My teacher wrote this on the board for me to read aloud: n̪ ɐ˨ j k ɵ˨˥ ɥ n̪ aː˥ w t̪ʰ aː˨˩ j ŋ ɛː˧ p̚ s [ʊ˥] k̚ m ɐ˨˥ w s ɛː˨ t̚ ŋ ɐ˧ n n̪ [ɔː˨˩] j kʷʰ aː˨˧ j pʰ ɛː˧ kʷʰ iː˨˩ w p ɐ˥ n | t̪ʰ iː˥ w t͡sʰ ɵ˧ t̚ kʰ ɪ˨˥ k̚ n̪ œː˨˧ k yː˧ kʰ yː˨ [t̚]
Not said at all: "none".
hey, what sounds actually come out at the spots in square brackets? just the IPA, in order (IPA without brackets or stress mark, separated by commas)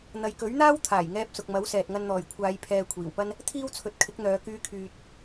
ʊ˨, ɔː˨˩, t̚